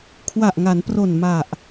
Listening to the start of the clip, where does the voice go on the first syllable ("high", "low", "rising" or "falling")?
low